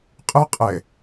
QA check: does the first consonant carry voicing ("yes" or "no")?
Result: no